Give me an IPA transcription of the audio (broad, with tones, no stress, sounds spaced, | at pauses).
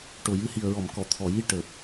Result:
ʈ o˨˩ j ɨ˧ h i˨˩ ə̯ ɹ ɔ˨˩˨ m k ɔ˨˩˨ t̪ʰ ɔ˨˩˨ j i˧ ʈ əː˨˩ p̚